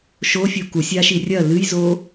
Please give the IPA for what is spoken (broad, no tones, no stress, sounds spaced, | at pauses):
ʃ o fʲ o k u sʲ a ʃ i rʲ ɐ l ɨ j z o